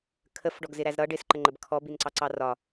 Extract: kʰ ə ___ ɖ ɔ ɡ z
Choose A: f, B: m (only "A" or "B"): A